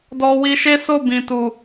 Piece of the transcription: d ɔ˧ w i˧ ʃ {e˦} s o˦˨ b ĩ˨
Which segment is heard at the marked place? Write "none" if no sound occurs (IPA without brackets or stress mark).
e˦